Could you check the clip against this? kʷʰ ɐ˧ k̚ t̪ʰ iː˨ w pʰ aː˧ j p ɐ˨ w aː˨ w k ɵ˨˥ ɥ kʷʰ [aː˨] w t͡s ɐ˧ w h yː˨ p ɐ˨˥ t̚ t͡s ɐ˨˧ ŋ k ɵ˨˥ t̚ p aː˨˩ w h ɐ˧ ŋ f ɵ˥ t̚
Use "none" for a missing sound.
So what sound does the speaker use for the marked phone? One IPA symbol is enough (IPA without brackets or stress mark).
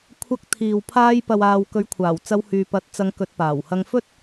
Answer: aː˨˩